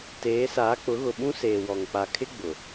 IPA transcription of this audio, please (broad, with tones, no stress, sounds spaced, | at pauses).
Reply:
t eː˨˦ s aː˨˦ k͡p ʊ˨˦ ɣ ʊ˨ ɓ ũ˦ s eː˨ w ɔ˨ ŋ k͡p a˨ kʰ ɪ˦ ɡ͡b ʊ˨